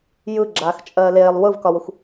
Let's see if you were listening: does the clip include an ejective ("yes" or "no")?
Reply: yes